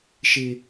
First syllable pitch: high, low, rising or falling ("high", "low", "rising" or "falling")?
high